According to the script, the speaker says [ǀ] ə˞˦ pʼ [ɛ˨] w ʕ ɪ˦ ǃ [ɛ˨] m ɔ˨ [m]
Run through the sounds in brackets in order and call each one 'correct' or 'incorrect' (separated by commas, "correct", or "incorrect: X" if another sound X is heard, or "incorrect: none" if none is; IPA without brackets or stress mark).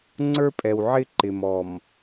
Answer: incorrect: ŋ͡ǀ, correct, incorrect: ɪ˨, correct